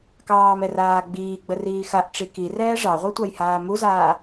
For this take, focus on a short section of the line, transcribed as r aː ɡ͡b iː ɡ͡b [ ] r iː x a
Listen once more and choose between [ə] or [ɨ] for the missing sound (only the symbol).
ə